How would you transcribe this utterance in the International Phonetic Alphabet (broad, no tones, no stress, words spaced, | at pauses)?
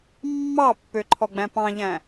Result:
mːɑpːøǃʰɔ ɡ͡bæ̃pɑ̃ʎæ̃